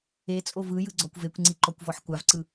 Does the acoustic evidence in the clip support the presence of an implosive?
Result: no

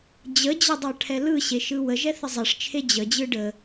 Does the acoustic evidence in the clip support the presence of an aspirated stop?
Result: yes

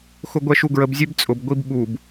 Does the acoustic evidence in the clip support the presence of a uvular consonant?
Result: no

